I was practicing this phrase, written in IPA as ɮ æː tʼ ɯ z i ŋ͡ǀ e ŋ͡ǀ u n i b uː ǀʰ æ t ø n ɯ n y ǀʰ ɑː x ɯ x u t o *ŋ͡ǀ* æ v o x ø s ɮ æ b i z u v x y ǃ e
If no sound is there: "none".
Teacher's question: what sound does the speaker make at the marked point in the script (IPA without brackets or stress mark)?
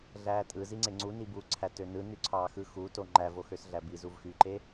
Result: ŋ͡ǃ